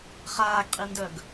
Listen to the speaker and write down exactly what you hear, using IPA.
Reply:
χaːɡqʼindœɡ

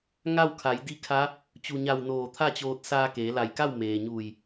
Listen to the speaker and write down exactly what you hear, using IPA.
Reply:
ŋa˥˨wkʰa˩˧j di˧˥kʰa˧˥ | t͡ɕu˩ɲa˧˩w noː˧˩t̪ʰa˥˨t͡ɕoː˧t̚ saː˧keː˩˧la˧˩jka˥˨w meː˩ɲuː˧˩j

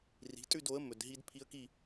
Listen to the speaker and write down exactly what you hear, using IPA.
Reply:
ri̤˨˥tʼʉ˥˧do˨˥ə̯ mɵ˨d ɦi˦˥dpʰi˦˥ə̯ki˥˧

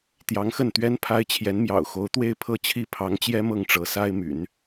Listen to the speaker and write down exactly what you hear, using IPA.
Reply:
t̪jɑ˧˥ŋxə˥˩nt̪ɥɛ˥n pʰa˥ɪ̯t͡ɕʰjɛ˧˥nmjɑ̰˨˩ʊ̯ xo˧˥ʊ̯t̪we˥˧ɪ̯ pʰɤ˥˩t͡ɕʰi˥pʰɑ˧˥ŋt͡ɕjɛ˥ mɤ˥˩ŋʈ͡ʂɤ˧˥sa˥ɪ̯my̰˨˩˦n

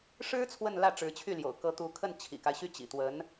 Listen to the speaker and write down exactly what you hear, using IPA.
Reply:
ʂɻ̩˥ t͡sʰwə˥˧nlä˥˩ ʈ͡ʂɻ̩˧˥t͡ɕʰy˥˩ljo̰˨˩ʊ̯ kɤ˧˥t̪u˧˥ kʰə˥˩nt͡ɕʰḭ˨˩ka˦ɪ̯ ɕy˥˩t͡ɕḭ˨˩t̪wə˧˥n

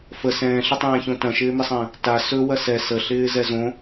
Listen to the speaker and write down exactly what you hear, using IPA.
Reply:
fə sɛ̃ːɬətˤɛ̃ːçõ tɐ̃ʃɪːmɪsˤə̃ː | ta sɵ wɐsɛ səɬɪː zɛzõ

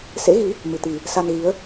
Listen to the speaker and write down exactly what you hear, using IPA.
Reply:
sḛ˧˥ɣi˨˦ | mɨ˨˩t̪i˨˩ | sa˧nɣi˨˦ə̯

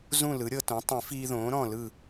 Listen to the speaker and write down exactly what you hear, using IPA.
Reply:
zũ˥˨lɯ˩˥ɾʲɤ˧tõ˩˥ tˤĩ˨˩˦fiː˧ðõː˩˥ ɾɔ̃˥˨lɯ˥˨

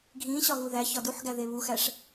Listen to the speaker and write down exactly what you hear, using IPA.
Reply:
ɡʱĩ ɕɒɣuðæ çɒduħɡæ ðeβuxæʂ

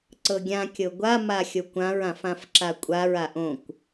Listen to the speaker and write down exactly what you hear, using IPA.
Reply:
ǀɤɡʲã kʲɤɡʷa maxʲokʷãɹ ãfãfǁakʷʼaɹ aʔõkʷ

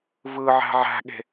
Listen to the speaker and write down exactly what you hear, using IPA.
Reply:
vɯʕæ̤ ʕæ̤ɠe̤

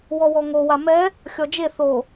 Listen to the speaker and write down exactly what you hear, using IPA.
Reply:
wɔwɔŋo wamɛ | xʲɔd͡ʒe θo

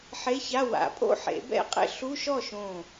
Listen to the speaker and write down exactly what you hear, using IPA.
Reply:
ħe˧˥˧ça˧˥˧ wa̰˨˩˦pʼo̰˥˧ħḛ˨˩˦ bɛ̰˥˩qʼḛ˥˧ ɬu˧˥˧ ʃɔ˥˩ʃõː˧˩

